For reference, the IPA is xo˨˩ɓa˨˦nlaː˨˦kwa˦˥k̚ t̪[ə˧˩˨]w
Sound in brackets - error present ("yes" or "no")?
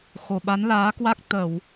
no